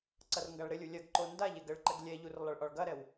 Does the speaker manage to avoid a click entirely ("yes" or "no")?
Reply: no